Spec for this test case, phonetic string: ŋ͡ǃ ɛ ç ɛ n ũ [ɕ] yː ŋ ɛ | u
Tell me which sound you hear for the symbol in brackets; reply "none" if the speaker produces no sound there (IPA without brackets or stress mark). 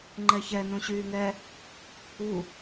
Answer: ɕ